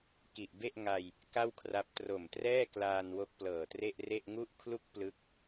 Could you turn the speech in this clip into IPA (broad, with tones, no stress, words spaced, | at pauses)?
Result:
ki˨˩ʔbe˥˩ʔŋa˧j | ka˥˩wkʰra˦˥p̚ tro˨˩mtrɛː˥˩klaː˧n wo˦˥k̚plɤː˨˩tre˥˩ʔre˥˩ʔ ŋu˦˥ʔkʰlu˦˥k̚ plɯ˦˥k̚